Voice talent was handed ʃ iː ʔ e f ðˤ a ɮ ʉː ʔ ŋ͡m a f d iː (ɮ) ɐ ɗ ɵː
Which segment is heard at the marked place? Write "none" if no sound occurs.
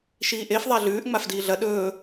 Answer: ɮ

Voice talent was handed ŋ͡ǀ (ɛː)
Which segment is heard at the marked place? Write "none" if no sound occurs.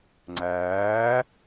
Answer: æː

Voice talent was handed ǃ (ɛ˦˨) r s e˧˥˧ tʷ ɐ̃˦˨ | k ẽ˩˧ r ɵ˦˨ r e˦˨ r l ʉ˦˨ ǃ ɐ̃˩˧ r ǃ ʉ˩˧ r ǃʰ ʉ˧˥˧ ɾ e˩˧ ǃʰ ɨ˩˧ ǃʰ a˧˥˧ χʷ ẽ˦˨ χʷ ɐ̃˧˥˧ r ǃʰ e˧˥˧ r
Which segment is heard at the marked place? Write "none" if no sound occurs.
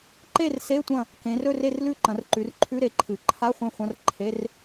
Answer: e˦˨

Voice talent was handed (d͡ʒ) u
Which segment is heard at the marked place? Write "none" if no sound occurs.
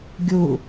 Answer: ɡʲ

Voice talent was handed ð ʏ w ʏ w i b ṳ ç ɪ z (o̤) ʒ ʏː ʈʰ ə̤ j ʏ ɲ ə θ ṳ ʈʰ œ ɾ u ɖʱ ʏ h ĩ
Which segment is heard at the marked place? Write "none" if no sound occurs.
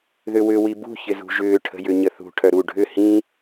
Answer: ṳ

